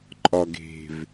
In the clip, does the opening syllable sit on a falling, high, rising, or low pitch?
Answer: low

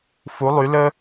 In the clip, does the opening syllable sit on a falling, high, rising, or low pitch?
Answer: rising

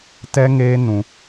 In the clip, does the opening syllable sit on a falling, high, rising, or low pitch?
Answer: high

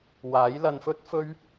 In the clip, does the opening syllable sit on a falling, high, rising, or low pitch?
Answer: rising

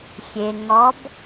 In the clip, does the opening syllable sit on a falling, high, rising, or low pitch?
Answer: low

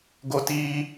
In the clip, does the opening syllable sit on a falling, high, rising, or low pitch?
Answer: high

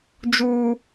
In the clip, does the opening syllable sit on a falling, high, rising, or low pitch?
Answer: high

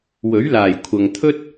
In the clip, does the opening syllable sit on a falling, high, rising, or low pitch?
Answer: rising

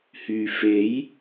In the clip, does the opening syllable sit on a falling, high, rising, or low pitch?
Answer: low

